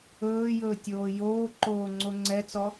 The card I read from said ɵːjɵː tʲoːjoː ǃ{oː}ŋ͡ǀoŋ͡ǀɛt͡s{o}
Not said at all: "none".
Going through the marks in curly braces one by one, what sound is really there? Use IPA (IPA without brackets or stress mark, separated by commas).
oː, ɔ